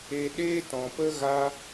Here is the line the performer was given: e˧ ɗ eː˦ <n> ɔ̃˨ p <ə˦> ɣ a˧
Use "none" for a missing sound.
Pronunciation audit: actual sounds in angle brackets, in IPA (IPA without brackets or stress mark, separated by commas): t, ə˦